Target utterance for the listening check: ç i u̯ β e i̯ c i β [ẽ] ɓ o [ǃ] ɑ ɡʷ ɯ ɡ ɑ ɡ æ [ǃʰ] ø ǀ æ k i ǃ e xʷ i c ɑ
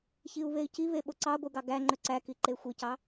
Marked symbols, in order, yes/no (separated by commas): no, no, no